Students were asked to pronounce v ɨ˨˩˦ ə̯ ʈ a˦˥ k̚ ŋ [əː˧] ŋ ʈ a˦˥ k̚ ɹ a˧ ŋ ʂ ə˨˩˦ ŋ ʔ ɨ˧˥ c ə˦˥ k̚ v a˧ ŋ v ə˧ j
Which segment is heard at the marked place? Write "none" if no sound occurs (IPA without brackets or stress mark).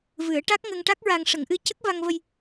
ə˧